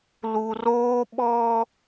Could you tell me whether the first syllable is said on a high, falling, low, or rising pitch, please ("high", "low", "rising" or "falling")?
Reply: low